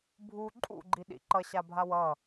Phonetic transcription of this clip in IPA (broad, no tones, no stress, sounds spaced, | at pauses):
bʱ u ǃʼ ṵ ɡ͡ǃ i ɗ ḭ ǃ ʌ ɕ a bʱ a w ʌ